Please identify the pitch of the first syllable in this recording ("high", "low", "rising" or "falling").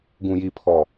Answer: low